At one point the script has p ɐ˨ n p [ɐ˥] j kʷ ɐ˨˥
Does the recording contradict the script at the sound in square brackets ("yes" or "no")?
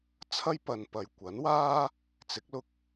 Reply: yes